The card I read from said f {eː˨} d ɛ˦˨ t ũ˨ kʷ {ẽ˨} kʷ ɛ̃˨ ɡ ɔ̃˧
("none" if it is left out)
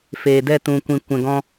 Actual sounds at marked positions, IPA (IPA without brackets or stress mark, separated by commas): eː˨, ĩ˨